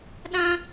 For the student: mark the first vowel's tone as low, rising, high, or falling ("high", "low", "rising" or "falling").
high